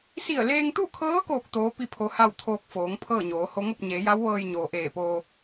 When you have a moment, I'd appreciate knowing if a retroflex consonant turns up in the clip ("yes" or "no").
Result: no